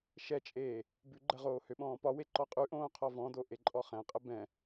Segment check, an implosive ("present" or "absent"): present